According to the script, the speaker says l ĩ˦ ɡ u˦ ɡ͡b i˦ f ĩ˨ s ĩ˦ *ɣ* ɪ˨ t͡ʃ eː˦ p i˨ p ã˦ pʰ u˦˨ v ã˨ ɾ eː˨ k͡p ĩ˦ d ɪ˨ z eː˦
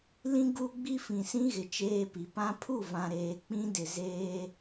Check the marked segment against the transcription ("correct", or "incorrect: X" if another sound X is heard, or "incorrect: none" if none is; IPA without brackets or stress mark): correct